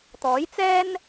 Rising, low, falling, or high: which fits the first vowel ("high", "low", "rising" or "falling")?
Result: rising